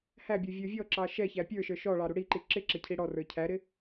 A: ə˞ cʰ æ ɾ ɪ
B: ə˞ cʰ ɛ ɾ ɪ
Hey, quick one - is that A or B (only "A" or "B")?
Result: A